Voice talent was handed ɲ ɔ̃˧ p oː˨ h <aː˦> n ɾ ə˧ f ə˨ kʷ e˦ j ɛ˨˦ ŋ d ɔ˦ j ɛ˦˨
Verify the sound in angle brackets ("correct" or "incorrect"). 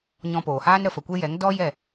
correct